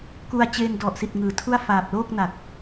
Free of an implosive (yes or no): yes